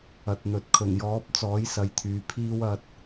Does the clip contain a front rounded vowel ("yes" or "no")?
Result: yes